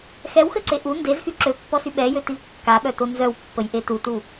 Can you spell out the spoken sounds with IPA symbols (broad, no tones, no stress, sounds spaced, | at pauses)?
x ɛ w x ə ǀ e ʔ u n d e z x y ǁ ø pː ɔ s y ɓ ɛ j ø t i v kː a ɓ œ t o n z œ w pː ə j ʔ e t u t u